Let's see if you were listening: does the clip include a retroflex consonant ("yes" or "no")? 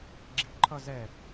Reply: no